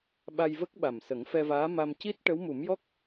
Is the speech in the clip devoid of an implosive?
no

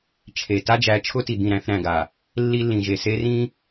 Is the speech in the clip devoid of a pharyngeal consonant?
yes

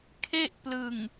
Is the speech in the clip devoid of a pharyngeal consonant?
yes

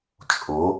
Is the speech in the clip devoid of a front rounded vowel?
yes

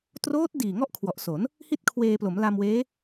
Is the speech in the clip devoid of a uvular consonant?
yes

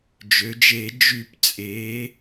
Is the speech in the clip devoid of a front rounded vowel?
no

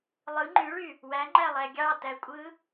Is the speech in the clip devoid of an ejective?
no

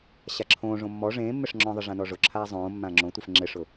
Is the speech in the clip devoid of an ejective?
yes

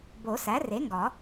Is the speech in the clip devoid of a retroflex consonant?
yes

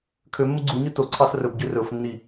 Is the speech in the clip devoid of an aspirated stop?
no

